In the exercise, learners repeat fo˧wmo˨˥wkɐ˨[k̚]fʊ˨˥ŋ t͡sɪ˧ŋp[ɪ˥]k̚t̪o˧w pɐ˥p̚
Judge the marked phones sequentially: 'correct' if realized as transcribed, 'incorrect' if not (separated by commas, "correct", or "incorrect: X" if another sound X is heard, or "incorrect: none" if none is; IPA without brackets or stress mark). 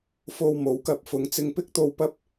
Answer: incorrect: p̚, correct